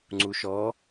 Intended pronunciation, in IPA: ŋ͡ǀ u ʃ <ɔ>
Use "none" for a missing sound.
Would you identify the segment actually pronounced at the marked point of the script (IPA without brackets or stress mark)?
ɔ